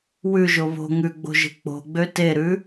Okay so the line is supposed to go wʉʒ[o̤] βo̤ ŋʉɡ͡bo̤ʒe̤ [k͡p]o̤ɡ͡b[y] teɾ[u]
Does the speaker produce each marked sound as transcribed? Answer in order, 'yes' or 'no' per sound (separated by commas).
no, yes, no, no